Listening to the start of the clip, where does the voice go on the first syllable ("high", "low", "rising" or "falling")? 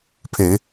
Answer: low